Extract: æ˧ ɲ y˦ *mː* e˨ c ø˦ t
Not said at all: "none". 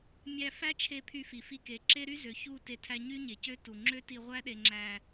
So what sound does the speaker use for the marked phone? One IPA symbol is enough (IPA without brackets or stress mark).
ɲ